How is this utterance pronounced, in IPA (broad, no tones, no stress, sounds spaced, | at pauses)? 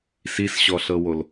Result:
s i s ɕ ɔ ɬ ɤ w o l